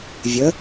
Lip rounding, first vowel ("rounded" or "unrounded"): unrounded